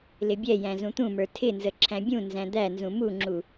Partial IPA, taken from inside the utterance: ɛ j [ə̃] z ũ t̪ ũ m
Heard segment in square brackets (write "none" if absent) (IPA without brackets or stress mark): æ̃